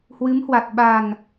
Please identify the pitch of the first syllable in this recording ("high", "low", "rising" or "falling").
rising